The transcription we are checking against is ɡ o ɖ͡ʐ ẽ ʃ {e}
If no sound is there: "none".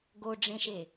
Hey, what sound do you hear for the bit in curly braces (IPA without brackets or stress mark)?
e